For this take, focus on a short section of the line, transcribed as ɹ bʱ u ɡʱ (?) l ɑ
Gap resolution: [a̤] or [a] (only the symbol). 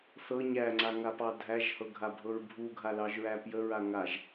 a